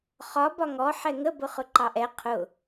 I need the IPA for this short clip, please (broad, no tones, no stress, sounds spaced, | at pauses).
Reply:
χ ɒ b ɒ ŋ ɔ ħ ɛ ŋ ə b ʊ χ ʊ ǃ ɑ ʔ ɛ qʰ ʊ